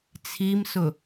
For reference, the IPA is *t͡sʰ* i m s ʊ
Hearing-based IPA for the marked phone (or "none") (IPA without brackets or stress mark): t͡sʰ